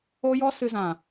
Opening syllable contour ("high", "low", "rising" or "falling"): high